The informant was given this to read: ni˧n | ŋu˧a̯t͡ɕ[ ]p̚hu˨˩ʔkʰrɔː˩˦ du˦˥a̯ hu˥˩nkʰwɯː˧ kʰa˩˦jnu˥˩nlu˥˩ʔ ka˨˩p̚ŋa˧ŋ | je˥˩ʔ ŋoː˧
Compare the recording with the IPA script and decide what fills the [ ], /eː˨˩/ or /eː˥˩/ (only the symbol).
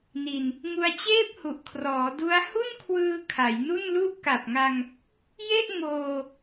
eː˥˩